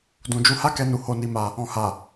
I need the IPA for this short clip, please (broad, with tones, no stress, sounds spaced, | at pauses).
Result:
d ũ˨ d͡ʒ u˧ h a˦ k ɛ˧ n u˨ h o˧ n i˧ m a˧ | ɔ̃˨ h a˨